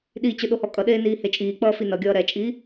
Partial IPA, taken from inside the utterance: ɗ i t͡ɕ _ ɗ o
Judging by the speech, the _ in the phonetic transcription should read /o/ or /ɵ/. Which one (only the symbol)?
ɵ